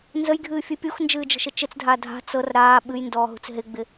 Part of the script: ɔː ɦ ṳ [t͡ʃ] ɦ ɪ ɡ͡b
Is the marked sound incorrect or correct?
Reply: incorrect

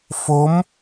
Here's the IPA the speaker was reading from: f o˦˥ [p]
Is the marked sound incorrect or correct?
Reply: incorrect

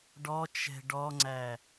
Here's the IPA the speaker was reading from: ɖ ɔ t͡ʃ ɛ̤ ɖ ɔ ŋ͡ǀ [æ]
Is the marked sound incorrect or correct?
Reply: correct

